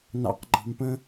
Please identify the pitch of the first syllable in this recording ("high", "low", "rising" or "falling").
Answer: low